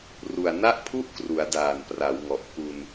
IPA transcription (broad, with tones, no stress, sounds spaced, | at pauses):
r u˨˩ a̯ n a˥˩ ʔ pʰ u˥˩ ʔ k r u˩˦ a̯ d aː˨˩ n p r a˩˦ w ŋ ɔ˨˩ ʔ k u˧ n